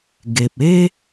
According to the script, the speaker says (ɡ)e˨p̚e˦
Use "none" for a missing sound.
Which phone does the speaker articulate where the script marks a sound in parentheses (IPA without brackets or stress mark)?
ɡ